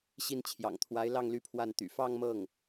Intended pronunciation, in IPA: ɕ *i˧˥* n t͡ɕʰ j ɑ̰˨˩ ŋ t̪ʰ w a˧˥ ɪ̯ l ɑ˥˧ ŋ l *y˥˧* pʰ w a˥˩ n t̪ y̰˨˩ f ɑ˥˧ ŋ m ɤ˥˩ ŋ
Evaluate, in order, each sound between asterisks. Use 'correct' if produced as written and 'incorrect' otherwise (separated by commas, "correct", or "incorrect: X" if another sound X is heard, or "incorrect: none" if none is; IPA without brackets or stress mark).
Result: incorrect: i˥˩, correct